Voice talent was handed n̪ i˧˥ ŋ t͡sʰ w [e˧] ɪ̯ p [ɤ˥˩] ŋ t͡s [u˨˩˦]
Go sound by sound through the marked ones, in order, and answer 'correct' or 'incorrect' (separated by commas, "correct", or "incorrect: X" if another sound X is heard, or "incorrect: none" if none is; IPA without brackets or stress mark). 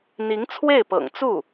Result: incorrect: e˥˩, incorrect: ɤ̰˨˩, incorrect: u˥˩